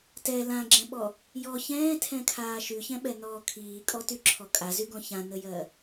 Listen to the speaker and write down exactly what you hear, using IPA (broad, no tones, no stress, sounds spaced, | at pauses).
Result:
t ɛ l ã ɡ͡ǁ ɛ̃ ɓ ɔ | j ɔ ç ɛ̃ː tʰ ɛ̃ kʰ aː ʃ y ç ɛ̃ ɓ ɛ n ɔː kʰ iː kʼ ɔ t y ǁʰ ɔ kʼ a z y ɡ ɔ̃ ç ã n ə j ɜ